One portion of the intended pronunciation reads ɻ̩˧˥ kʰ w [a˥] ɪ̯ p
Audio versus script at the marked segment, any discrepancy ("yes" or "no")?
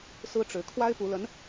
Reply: no